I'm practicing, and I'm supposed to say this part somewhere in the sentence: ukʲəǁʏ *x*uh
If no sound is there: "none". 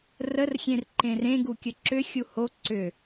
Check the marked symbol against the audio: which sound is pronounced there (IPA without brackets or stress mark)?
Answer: xʲ